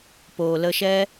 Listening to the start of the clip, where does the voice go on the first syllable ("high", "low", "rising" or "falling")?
low